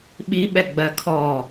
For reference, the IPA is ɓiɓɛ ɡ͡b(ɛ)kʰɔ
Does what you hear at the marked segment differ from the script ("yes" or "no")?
yes